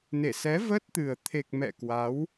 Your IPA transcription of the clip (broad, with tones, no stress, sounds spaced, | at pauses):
n e˧˩ s ɛ˨˦ v ə˦˥ t̚ t̪ ɨ˨˩ ə̯ t̪ʰ e˨˩ k̚ m ɛ̰˧˨ k w a˨˦ w